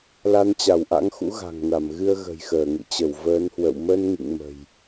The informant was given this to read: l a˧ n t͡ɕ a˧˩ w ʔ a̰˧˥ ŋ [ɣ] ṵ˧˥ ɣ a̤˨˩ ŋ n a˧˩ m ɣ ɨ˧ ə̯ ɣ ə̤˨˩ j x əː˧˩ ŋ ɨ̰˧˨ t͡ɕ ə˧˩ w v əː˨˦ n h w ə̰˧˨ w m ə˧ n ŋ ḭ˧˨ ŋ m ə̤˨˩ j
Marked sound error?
yes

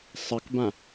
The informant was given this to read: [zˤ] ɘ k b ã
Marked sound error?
yes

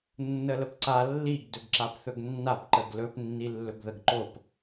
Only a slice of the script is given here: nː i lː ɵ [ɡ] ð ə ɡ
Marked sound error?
no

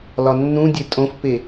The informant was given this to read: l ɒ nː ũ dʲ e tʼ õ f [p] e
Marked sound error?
no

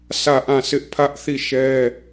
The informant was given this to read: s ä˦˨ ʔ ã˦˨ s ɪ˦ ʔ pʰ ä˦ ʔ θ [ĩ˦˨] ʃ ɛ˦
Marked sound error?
yes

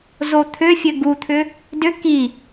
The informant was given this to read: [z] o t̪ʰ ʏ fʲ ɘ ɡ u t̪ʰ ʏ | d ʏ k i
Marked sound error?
no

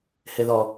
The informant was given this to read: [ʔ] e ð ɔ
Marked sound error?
yes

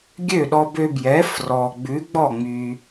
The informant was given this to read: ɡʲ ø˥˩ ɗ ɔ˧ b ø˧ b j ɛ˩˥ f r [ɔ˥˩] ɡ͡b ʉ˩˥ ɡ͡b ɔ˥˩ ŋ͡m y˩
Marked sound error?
yes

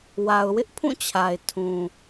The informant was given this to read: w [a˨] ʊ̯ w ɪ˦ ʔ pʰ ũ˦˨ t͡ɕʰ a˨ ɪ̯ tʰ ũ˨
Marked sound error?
no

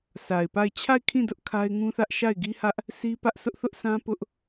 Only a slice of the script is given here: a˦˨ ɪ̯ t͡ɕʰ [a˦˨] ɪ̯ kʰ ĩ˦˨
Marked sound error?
no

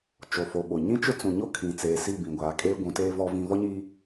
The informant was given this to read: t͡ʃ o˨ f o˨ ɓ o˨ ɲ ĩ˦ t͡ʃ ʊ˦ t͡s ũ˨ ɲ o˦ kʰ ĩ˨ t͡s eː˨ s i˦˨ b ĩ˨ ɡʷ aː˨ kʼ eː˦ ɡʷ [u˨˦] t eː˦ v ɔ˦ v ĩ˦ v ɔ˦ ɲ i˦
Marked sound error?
yes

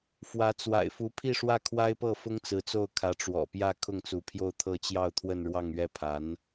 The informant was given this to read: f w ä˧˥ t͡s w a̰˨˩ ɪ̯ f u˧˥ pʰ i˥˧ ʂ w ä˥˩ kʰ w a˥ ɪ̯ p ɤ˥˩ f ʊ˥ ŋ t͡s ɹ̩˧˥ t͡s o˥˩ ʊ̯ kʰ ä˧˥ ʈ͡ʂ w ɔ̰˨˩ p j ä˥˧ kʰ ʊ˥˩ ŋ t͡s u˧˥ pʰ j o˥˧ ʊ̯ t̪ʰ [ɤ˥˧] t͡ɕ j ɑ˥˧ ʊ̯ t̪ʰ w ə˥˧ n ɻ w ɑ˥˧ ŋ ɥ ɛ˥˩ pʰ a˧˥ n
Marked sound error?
no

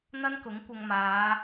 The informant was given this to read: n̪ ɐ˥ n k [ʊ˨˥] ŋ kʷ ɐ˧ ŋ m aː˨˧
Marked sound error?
no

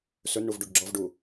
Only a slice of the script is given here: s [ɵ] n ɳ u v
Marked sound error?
no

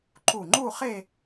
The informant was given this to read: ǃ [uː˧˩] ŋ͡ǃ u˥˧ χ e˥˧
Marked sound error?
yes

